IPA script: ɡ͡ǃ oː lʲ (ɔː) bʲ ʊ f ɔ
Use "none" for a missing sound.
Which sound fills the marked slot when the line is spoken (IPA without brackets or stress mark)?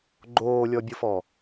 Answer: ɔ